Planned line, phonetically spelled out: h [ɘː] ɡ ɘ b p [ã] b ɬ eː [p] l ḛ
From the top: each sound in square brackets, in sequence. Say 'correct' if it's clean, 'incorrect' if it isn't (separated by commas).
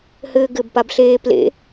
correct, incorrect, correct